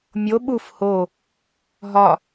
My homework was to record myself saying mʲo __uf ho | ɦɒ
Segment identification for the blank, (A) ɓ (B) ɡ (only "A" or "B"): A